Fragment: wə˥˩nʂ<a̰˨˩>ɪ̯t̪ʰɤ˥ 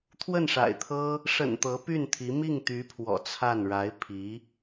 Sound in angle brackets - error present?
no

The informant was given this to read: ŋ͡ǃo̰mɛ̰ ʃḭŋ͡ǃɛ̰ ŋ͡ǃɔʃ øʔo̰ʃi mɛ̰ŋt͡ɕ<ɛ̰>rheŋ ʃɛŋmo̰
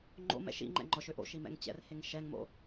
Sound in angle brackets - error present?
no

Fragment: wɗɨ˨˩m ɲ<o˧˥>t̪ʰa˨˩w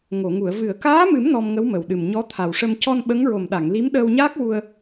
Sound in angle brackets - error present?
yes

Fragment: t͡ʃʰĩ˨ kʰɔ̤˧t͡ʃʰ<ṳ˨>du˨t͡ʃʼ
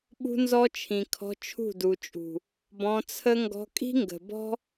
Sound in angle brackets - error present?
yes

